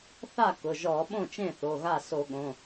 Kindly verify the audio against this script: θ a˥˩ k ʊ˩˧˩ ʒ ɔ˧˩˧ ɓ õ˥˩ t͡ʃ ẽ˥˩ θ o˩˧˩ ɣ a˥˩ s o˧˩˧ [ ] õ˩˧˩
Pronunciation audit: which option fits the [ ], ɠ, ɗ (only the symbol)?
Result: ɠ